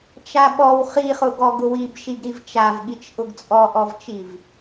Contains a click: no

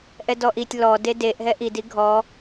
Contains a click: no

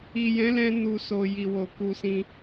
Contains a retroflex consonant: no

